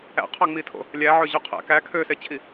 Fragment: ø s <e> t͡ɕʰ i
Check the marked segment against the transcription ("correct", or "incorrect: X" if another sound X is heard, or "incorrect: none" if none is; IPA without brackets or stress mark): correct